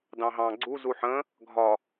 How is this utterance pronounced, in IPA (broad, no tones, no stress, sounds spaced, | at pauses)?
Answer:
d ɑ̃ ɦ ɑ̃ ɡ͡ǀ u z u ħ ə̃ | ɡʱ ɒ